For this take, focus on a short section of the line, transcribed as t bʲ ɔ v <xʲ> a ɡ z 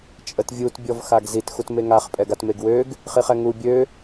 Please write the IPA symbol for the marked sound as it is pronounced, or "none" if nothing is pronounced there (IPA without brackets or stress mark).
x